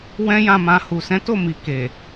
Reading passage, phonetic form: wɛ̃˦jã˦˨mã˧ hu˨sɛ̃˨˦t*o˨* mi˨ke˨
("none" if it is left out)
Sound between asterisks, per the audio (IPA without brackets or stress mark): o˦˨